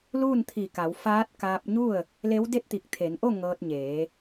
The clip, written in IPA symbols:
l uː˥˨ n t̪ʰ i˧˩ k a˩˧ w f aː˧˥ t̚ k aː˧ p̚ ɲ u˥˨ ə̯ | l e˧˥ w d e˥˨ t̚ t̪ i˧˩ k̚ t̪ʰ e˩˧ n ʔ o˥˨ ŋ ɤː˧ t̚ ɲ eː˩˧

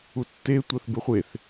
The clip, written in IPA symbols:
u tː e tʷ ʌ θ b e χʷ e θ

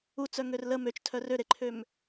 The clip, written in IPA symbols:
u t͡s œ ŋ ø r l ə m ø t͡ʃ tʰ œ r ø ɾ e ǃʰ ø m

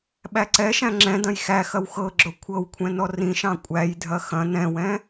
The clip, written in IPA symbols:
ɓ æ ǀ ɛ ʃ æ̃ ŋ͡ǁ ɛ̃ d ɐ̃ j x æ x ɐ w x ɤ ɡ͡ǁ o kʷʰ ɤ w kʷʰ ɛ̃ n ɔ r ĩ ʃ ɑ̃ kʷʼ æ j dʱ ɐ x ɐ̃ n ɛ̃ w ɛ̃

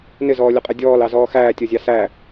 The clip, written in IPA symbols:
n ɪ z ɔː lʲ ʊ qʼ ɛ dʲ ɔː l ɑ z ɔː x æː tʲ ɔ zʲ ɑ s æ

